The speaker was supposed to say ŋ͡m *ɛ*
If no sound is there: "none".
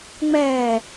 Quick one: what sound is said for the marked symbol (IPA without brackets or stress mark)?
ɛ